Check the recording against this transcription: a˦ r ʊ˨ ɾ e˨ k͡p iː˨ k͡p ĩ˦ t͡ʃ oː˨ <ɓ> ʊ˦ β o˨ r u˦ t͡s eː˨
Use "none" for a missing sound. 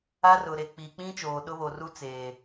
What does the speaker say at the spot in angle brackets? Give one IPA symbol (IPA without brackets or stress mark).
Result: ɗ